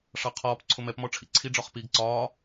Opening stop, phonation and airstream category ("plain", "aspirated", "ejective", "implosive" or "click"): aspirated